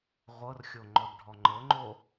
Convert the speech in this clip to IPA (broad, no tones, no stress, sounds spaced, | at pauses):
ʁʷ ɤ r xʲ o ŋ͡ǃ ɔ d ɖʱ ɔ ŋ͡ǃ ɤ ŋ͡ǃ o